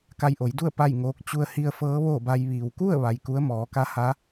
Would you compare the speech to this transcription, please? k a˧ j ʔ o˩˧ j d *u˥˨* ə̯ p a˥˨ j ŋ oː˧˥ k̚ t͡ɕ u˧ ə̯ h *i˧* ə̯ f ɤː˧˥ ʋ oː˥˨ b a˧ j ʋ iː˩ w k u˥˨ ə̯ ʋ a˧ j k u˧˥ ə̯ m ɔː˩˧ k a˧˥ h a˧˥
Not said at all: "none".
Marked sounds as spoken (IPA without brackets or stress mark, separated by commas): u˥˨, i˧